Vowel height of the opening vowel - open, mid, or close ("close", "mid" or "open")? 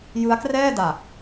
close